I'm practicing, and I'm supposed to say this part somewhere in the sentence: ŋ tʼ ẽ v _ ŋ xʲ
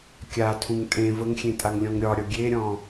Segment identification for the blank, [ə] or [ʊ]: ə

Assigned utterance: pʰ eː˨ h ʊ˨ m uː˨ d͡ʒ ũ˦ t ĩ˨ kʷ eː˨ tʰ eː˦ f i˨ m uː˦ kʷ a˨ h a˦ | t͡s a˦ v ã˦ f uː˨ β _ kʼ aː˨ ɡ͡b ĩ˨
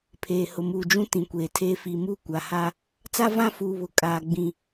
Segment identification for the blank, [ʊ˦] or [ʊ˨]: ʊ˨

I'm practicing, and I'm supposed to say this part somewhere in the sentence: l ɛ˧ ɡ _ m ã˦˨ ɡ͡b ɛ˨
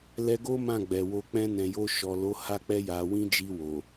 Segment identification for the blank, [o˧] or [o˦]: o˦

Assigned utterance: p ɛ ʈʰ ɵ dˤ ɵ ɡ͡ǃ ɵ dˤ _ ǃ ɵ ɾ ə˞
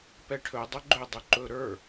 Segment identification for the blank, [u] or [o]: u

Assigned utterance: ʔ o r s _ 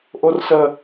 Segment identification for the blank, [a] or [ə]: ə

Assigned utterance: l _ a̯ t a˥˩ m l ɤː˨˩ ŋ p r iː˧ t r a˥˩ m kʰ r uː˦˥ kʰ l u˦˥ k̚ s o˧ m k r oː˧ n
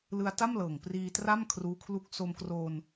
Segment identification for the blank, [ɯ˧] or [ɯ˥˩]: ɯ˧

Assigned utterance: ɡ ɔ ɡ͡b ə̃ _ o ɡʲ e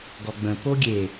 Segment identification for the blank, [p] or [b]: p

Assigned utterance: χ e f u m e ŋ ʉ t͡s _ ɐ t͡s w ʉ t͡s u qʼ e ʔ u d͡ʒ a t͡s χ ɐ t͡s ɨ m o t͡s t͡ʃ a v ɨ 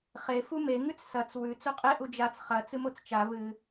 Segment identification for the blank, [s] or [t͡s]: s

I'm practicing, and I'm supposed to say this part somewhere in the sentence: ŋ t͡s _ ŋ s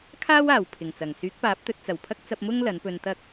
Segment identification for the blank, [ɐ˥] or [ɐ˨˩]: ɐ˨˩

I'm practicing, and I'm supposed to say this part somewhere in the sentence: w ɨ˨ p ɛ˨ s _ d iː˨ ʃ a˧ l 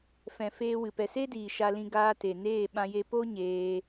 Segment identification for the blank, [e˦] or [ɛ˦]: e˦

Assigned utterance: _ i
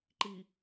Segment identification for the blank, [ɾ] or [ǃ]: ǃ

